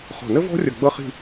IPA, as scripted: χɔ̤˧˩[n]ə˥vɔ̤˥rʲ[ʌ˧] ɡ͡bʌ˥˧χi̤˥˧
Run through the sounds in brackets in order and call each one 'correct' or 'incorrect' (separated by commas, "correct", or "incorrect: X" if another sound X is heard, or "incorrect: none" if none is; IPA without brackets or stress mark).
correct, incorrect: ʌ˧˩